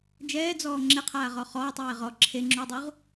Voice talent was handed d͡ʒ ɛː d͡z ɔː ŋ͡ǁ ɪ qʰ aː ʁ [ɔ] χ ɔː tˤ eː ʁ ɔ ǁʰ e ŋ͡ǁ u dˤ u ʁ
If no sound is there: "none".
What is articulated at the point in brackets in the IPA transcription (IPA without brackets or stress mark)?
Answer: ɔ